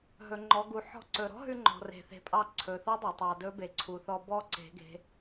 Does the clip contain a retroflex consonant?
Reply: no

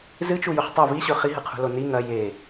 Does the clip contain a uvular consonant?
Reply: yes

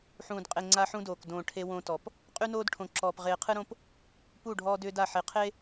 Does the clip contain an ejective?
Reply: yes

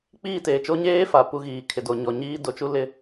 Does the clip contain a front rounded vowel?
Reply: no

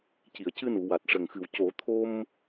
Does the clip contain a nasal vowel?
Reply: no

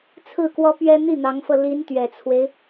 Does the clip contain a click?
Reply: no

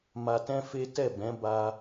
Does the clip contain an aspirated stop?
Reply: no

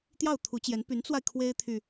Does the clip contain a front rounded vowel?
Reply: yes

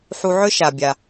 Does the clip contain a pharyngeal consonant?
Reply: yes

